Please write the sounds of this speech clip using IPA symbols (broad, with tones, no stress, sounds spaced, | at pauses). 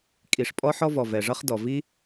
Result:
kʼ i˩ ʂ pʼ ɔ˥ ħ ɔ˥ v ɔ˩ v ɛ˩ ʐ ʌ˥ χ d ɔ˩ v i˥